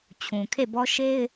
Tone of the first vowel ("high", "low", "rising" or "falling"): low